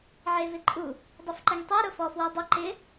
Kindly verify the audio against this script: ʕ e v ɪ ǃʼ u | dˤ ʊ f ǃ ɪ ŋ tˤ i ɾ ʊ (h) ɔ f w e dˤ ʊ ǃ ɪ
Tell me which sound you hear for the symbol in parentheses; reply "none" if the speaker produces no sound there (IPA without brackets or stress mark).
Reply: f